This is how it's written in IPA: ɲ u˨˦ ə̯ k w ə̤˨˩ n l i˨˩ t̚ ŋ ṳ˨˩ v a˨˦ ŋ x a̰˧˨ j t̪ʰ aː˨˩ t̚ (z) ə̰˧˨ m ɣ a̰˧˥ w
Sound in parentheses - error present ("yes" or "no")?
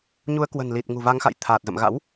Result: no